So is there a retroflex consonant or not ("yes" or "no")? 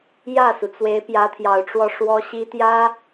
yes